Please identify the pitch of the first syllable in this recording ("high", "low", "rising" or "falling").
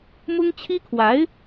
high